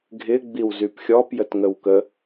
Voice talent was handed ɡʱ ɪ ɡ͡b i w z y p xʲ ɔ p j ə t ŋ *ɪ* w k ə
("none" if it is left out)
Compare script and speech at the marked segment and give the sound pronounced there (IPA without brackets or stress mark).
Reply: ə